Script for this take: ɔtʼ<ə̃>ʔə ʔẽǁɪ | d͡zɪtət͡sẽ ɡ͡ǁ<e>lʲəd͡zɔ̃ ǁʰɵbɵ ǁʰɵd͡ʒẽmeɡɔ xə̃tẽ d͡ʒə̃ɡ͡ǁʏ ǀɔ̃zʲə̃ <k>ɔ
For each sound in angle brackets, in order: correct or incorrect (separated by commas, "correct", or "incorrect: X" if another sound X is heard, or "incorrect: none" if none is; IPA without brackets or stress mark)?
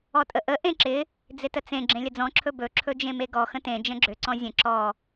incorrect: ə, incorrect: ẽ, incorrect: ǁ